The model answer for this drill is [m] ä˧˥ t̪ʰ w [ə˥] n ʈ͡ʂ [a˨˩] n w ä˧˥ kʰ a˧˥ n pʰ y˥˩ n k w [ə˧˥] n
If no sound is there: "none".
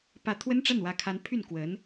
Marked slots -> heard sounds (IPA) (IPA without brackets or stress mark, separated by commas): p, ə˥, a˥˩, ə˧˥